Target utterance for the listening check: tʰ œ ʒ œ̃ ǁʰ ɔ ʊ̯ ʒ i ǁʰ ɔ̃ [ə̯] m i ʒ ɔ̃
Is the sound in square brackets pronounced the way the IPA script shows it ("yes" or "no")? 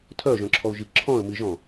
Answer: yes